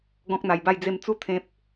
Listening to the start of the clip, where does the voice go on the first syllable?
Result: high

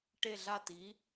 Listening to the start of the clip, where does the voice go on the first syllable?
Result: falling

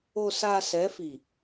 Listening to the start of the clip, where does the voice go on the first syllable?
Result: low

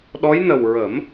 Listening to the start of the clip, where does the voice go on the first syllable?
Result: rising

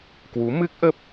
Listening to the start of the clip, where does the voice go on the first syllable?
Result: rising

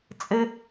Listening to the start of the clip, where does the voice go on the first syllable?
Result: high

